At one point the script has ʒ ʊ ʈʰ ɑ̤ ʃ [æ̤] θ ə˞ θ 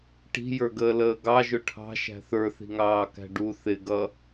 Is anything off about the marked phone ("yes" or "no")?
no